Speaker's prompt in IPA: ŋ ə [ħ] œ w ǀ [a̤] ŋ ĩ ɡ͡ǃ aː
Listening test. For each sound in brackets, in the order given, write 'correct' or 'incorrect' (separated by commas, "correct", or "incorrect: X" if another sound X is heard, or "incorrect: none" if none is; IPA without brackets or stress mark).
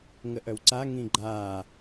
incorrect: ʔ, incorrect: a